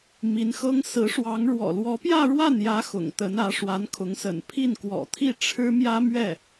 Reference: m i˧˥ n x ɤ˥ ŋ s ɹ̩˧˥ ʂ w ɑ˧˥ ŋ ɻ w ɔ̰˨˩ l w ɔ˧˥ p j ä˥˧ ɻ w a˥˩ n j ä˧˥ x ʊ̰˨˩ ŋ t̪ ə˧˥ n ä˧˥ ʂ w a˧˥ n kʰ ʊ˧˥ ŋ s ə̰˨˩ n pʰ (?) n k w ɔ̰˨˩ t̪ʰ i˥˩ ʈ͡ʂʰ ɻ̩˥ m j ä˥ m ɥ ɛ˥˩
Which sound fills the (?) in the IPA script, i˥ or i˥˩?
i˥˩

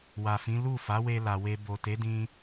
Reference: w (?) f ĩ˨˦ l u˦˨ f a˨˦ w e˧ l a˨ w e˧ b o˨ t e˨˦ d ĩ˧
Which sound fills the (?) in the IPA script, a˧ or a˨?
a˨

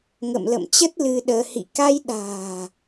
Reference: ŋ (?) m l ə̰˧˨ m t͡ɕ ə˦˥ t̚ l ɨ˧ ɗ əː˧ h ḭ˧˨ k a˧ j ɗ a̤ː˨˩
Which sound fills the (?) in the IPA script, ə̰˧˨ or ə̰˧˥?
ə̰˧˨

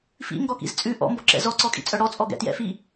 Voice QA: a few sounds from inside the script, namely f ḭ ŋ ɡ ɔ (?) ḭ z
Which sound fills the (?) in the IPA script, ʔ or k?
k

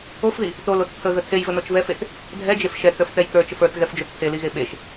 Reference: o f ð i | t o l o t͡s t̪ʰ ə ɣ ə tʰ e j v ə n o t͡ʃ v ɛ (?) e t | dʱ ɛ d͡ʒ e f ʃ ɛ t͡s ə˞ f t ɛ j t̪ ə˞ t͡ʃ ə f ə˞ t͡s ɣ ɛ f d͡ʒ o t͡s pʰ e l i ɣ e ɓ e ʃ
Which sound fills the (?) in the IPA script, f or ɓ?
f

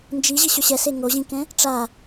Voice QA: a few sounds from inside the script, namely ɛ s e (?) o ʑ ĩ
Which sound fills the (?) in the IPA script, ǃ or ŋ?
ŋ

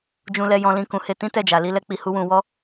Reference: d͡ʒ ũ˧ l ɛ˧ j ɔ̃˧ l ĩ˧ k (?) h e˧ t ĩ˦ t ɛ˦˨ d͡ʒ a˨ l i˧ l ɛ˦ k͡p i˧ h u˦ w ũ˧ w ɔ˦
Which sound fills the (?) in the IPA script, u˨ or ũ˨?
ũ˨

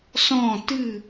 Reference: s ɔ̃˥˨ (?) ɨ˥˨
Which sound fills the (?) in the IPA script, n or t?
t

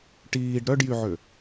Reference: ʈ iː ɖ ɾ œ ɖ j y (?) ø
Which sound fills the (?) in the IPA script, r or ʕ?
ʕ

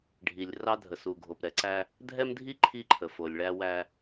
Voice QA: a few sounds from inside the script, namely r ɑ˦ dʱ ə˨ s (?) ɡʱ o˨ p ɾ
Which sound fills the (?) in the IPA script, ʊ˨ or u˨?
u˨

